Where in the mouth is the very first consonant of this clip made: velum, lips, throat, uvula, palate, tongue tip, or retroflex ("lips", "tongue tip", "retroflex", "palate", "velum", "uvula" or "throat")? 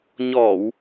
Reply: palate